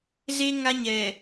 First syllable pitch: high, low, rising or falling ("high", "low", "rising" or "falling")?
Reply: high